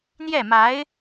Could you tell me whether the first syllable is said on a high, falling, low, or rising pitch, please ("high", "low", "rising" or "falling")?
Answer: falling